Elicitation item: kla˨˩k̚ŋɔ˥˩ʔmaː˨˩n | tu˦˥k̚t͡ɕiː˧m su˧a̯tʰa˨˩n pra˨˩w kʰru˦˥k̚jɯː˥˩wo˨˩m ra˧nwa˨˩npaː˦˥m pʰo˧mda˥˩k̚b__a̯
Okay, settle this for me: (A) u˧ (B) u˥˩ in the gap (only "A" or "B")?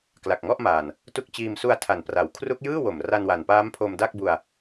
A